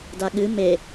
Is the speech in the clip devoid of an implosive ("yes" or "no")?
no